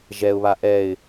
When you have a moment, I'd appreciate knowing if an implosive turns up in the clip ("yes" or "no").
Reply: no